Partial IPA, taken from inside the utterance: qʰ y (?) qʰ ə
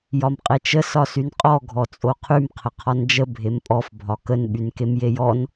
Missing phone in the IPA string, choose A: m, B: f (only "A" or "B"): A